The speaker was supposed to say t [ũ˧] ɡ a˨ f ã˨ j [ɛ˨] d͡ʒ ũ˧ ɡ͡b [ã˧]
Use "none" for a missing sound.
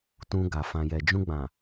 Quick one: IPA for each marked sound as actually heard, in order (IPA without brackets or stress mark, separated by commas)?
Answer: ũ˧, ɛ˨, ã˨